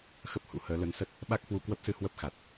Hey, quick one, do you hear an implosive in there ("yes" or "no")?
yes